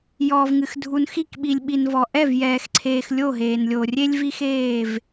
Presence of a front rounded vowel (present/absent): absent